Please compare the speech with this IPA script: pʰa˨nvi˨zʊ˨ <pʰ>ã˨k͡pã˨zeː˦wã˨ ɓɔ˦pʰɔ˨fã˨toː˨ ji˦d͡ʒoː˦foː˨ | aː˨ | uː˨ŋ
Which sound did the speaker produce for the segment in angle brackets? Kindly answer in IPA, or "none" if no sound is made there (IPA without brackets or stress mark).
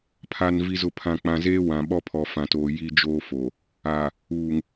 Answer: pʰ